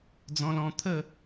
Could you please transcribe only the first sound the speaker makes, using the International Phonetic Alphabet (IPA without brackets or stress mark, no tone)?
d͡z